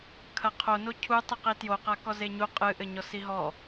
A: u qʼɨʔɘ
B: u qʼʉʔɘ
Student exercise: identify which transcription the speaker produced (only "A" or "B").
A